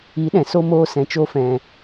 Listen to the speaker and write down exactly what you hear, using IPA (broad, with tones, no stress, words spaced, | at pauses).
i˨˦ɗɛ̃˨ so˦moː˦ sɛ̃˧t͡ʃo˦fɛ̃˧